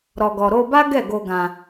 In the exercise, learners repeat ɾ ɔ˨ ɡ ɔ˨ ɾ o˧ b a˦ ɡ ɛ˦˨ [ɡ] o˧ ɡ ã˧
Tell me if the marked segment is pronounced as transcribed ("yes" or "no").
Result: yes